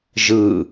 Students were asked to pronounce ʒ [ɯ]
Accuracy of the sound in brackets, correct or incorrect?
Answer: correct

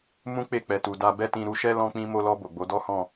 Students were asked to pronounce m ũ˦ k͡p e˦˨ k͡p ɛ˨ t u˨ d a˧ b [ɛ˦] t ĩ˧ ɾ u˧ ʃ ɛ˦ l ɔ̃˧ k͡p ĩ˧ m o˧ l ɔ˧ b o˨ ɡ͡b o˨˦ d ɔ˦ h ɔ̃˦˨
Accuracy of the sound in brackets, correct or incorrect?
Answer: correct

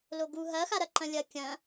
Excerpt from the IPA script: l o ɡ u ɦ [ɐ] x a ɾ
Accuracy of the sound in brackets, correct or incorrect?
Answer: correct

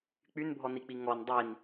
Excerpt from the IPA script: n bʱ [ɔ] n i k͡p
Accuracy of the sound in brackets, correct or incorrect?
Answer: correct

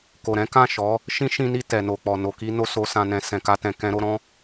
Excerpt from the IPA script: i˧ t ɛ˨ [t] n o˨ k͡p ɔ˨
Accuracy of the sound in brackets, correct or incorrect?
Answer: incorrect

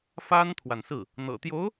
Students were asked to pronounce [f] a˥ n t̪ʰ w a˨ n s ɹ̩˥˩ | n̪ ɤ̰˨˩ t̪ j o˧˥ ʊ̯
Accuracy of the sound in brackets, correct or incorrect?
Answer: correct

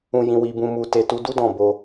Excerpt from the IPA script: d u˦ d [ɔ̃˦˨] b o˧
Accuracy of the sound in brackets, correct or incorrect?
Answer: correct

